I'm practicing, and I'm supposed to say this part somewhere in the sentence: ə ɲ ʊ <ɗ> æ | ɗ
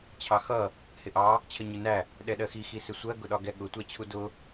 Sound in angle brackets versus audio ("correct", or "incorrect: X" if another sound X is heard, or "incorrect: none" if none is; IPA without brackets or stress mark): incorrect: n